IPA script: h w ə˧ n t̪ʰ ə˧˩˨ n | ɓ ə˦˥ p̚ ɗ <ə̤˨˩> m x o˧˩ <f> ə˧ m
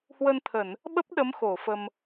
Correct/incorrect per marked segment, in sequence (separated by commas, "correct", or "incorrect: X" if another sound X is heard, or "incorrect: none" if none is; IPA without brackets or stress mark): incorrect: ə˨˦, correct